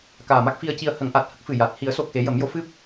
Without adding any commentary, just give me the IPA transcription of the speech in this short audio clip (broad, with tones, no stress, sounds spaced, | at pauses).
k aː˨˩ m a˦˥ k̚ f i˧ ə̯ c i˧ ə̯ h ə˨˩˦ ŋ ʔ a˨˩ t̚ h ə˦˥ k̚ f ɨ˨˩ j a˨˩ t̚ h i˨˩˦ ə̯ s o˨˩ k̚ x e˨˩˦ j ə˨˩˦ m j o˨˩˦ f ɨ˦˥ p̚